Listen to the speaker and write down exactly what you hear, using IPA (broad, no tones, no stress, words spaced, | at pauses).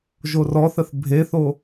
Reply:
ʒorɔθəθ bʱeθo